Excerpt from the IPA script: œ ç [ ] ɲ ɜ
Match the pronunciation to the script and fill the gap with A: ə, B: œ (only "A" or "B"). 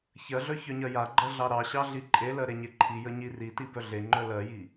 B